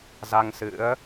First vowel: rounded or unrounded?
unrounded